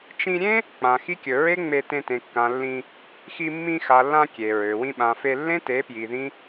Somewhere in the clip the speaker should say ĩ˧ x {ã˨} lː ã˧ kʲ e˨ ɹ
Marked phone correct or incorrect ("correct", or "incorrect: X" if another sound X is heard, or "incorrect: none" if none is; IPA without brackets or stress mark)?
incorrect: a˨